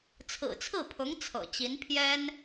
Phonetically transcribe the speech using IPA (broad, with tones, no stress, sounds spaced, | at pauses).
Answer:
t͡sʰ ɹ̩˨˩ t͡sʰ ɹ̩˥˩ pʰ ʊ˧˥ ŋ t͡sʰ ɤ̰˨˩ t͡ɕ i˧˥ n pʰ j ɛ˥ n